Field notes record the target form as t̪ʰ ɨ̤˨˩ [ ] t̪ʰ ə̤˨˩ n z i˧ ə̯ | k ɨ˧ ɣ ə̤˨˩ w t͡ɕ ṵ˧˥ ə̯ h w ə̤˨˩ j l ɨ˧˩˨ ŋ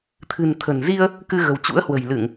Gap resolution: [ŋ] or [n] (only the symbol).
n